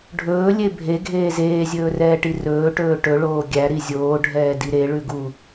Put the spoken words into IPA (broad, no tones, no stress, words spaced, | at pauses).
ɖʱɵːlʲe bʱeɡʱeː zeːzʲɵːrɛːʈi rɵːʈɵː ʈɵɭoː ɡʲæɾi zʲoːɖʱɛːdi ɾeɭʉɡu